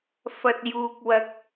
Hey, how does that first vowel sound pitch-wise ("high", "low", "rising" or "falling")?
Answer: low